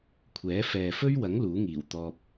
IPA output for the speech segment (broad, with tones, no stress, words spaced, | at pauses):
kʷʰɛː˨˥ fɛː˨fɵ˥ɥwɐ˨˥ŋ luː˨˥ŋiː˨˩w t̪ɔː˧p̚